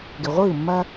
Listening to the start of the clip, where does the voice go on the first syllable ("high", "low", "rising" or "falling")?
low